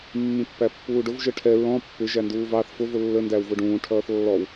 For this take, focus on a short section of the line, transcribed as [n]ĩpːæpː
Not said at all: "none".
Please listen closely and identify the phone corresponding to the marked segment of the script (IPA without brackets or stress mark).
mː